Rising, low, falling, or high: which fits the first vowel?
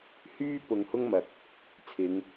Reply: high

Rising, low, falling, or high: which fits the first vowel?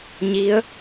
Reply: rising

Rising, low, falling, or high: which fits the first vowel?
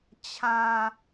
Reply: low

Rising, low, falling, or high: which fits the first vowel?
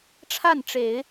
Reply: falling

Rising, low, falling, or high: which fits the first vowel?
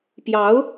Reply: rising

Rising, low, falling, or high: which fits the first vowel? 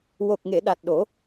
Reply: low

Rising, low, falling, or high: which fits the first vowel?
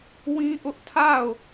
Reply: high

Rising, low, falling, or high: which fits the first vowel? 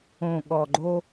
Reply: low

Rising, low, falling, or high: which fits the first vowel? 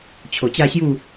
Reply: low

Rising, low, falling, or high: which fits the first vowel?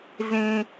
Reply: high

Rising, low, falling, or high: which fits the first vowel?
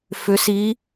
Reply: rising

